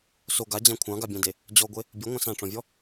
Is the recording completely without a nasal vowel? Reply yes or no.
no